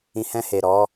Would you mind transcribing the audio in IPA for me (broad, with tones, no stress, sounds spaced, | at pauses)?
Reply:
ĩ˨ h ɛ̃˧ h e˨ ɾ ɔ˨˦